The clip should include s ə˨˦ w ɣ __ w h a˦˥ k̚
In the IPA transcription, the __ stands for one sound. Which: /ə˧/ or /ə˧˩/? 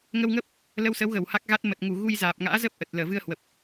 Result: ə˧˩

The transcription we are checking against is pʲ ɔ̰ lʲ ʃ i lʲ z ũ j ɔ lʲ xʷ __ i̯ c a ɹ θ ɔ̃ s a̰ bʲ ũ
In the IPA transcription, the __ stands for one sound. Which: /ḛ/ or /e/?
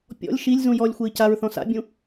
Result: e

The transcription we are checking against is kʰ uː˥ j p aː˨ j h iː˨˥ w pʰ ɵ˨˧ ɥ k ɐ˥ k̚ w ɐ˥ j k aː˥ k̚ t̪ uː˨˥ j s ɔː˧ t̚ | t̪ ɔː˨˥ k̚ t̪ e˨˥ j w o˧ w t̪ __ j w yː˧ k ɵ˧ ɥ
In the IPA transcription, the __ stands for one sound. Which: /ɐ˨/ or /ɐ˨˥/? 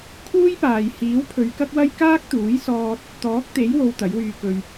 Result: ɐ˨˥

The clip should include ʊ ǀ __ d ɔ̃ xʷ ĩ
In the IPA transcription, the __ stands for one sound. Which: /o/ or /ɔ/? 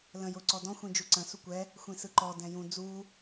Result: ɔ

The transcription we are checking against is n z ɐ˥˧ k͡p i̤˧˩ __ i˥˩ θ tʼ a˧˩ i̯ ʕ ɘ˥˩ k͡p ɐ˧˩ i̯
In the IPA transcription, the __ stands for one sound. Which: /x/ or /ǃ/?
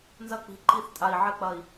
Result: ǃ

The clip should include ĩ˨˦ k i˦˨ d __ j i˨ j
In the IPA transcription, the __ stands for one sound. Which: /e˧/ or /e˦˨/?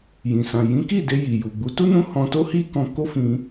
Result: e˧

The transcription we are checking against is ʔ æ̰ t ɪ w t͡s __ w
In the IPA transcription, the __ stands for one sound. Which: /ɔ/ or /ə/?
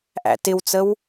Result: ə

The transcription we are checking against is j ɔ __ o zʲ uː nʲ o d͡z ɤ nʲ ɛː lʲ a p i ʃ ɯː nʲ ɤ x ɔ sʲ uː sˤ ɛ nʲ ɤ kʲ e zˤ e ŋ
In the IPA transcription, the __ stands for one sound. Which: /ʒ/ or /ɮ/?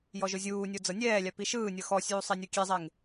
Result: ʒ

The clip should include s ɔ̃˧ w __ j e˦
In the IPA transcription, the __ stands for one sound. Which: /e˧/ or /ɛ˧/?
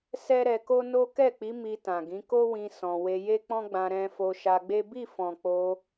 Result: e˧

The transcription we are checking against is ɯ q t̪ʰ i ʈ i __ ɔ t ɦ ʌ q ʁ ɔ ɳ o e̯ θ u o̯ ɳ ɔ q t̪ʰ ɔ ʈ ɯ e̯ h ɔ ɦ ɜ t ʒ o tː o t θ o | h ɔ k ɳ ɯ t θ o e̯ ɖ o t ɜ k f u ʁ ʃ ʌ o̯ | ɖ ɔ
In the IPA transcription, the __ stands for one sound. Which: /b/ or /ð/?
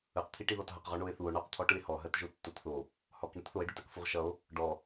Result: ð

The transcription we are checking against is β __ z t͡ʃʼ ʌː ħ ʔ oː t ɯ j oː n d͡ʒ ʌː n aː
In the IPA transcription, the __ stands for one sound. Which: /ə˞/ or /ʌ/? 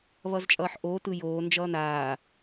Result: ʌ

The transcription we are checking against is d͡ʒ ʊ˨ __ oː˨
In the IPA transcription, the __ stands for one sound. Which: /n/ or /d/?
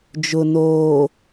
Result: n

